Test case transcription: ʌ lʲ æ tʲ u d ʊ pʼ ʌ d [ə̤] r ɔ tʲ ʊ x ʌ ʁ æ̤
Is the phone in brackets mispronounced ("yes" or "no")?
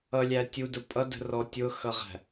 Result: no